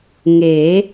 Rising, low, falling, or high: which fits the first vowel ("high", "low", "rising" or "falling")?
rising